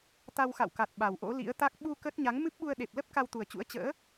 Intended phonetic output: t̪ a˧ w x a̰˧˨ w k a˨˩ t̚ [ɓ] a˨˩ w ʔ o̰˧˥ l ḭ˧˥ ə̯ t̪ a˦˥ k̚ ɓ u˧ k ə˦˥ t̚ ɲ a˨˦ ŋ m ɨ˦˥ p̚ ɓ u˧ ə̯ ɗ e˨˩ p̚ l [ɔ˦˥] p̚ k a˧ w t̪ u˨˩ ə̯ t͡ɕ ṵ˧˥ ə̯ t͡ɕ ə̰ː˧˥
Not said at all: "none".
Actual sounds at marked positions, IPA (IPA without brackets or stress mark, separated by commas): ɓ, ə˦˥